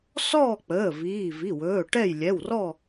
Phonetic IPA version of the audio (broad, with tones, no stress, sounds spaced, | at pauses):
s ɔː˥˨ k͡p əː˩˧˩ v iː˩˧˩ v i˩˧˩ w ɵː˩˧˩ ʈ ɛ˥˨ j lʲ ɛ˩˧˩ w r ɔ˥˨